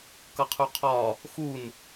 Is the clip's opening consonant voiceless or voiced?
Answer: voiceless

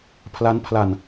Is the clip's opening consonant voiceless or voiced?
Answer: voiceless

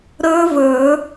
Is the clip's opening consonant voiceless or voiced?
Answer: voiced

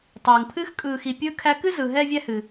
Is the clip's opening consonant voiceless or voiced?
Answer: voiceless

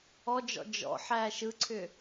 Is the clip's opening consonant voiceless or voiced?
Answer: voiced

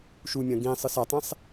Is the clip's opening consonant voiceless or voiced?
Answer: voiceless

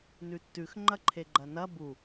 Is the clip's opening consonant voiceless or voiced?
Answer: voiced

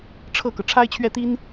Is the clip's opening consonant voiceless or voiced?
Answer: voiceless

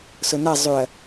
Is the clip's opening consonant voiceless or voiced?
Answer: voiceless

